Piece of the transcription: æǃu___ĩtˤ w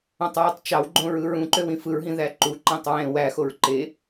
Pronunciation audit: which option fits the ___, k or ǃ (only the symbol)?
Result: ǃ